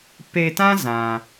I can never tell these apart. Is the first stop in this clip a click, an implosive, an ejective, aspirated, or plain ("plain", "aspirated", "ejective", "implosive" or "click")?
plain